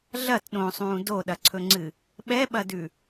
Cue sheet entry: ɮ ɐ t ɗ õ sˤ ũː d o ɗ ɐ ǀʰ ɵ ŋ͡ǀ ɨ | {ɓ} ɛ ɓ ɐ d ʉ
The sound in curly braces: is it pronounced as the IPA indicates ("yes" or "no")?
yes